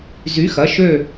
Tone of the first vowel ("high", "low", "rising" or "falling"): rising